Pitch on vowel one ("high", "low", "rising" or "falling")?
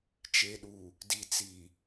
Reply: low